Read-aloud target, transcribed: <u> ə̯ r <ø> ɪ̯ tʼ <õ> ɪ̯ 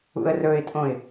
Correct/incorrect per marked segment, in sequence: incorrect: ṵ, incorrect: ɵ, correct

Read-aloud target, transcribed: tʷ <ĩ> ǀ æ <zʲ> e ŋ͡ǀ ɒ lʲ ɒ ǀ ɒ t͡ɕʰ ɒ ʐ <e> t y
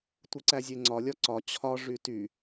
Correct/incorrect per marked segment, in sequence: incorrect: i, correct, incorrect: y

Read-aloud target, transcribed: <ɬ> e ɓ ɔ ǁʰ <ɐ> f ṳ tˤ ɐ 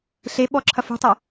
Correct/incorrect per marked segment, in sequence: correct, correct

